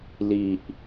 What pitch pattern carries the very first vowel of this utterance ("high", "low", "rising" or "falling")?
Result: low